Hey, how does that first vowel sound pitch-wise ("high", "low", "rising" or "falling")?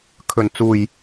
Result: low